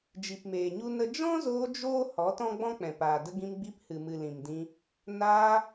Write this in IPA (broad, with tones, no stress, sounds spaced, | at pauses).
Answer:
d͡ʒ i˨ p m eː˨ ɲ u˦ n ə˦ d͡ʒ ɔ̃˦ z oː˧ d͡ʒ oː˦ h ɔ˨˦ t ɔ̃˦ ɡ͡b ɔ̃˦ k͡p ɛ̃˨ p aː˨ d ə˦ ɡ ĩ˧ m ɡ͡b i˧ p h ɨ˨ m ɨ˨ l ĩ˨ m d ĩ˧ | n aː˧